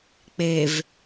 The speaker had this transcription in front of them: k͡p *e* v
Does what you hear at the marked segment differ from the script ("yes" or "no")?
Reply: no